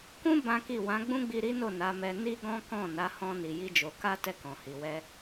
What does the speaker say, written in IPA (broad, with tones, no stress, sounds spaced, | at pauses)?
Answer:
k ũ˦ b ã˦ k i˦˨ w ã˨˦ ɡ͡b ũ˦ ɡ͡b i˧ ɾ i˦ n o˦˨ n a˨˦ m ɛ˧ n i˦ ɡ ɔ̃˦ k ɔ̃˦˨ n a˨˦ h ɔ̃˦ n i˧ j i˦ d͡ʒ o˧ k a˦ t ɛ˦˨ k ɔ̃˨ h i˨ w ɛ˧